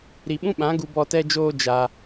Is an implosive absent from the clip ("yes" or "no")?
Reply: no